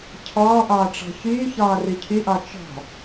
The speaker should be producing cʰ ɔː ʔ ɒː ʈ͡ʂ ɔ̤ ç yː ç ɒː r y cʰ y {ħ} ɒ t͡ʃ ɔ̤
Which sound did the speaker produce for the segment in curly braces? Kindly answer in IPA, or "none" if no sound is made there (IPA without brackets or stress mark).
ʔ